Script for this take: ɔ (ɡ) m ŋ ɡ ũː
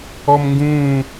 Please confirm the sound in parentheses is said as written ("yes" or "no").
no